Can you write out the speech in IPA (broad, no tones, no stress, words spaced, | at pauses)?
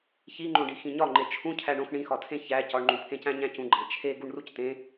çiŋ͡ǃõɖi xĩɲɒŋ͡ǃe t͡ʃʰũ cʰæɳõx ɳĩxɒtʰẽ çæ cɒɳŋ͡ǃũpʰẽcæ̃ ɲæ̃cũɡ͡ǃæ̃ t͡ʃʰe ɡuɳructẽ